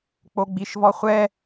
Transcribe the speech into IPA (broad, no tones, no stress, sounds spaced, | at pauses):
k͡p o ɡ͡b i ʃ v ɔ χʷ ɛ